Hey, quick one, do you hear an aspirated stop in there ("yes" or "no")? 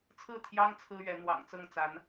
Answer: yes